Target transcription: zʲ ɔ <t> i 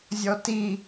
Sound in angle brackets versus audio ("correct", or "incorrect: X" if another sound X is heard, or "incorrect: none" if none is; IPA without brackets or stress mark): correct